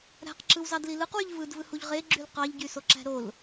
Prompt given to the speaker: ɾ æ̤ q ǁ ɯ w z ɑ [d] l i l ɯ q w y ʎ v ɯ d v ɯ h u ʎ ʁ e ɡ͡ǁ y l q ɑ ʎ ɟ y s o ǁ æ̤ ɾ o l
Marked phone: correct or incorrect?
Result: correct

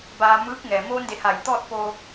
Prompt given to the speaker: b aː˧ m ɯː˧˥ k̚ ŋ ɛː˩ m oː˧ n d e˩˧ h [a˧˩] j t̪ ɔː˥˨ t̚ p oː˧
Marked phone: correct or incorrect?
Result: correct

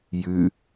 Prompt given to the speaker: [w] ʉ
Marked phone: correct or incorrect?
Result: incorrect: j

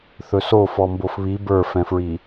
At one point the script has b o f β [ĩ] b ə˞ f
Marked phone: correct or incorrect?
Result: incorrect: i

